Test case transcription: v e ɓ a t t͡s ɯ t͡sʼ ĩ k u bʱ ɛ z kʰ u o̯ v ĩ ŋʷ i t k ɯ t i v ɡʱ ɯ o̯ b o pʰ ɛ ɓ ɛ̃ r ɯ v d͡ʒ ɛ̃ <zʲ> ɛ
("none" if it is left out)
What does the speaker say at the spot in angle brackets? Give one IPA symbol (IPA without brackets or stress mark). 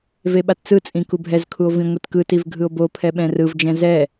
z